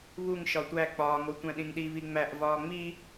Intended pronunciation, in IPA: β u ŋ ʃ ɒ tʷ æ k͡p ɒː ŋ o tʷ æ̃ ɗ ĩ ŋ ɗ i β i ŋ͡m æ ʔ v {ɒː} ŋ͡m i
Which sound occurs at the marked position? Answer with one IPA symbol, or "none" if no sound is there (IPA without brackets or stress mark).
ɒː